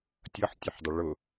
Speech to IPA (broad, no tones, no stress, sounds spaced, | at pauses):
tʲ ɤ ħ tʲ ʊ ħ dˤ ə ɭ ʊ